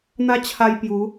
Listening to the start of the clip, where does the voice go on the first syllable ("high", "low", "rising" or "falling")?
high